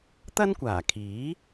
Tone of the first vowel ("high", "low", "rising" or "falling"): high